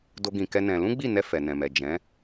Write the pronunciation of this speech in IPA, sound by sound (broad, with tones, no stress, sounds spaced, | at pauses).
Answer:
d o˦ ɡ ĩ˧ k ɛ˦ n ɛ̃˧ l ũ˦ ɡ͡b i˦˨ n ɛ˧ f ɛ˨ n ɛ̃˨ m ɛ˨ d͡ʒ ɛ̃˨˦